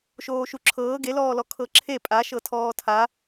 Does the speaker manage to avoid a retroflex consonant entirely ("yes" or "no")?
yes